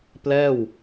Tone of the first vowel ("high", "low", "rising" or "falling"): falling